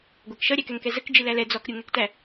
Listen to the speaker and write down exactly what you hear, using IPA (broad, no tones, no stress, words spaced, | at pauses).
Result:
ɡʷækʃʌ ɾʲækɛŋkɛzək d͡ʒilælɛ d͡zɔk ɾʲuŋɛktæ